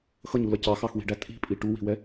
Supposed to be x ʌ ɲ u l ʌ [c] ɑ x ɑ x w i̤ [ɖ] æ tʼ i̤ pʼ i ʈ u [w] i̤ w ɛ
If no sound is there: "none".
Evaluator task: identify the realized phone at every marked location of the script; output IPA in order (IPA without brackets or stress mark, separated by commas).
c, ɖ, w